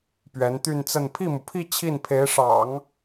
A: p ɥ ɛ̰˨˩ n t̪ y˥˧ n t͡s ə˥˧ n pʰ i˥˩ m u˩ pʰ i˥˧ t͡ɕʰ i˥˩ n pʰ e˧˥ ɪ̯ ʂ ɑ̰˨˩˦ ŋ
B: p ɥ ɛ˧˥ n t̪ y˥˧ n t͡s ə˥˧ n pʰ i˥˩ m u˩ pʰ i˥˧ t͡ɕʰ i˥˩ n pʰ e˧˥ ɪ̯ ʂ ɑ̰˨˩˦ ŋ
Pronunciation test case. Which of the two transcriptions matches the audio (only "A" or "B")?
B